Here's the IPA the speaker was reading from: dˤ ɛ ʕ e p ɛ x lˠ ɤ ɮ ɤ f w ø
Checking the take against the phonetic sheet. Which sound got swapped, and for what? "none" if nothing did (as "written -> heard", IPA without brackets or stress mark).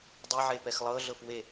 ø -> e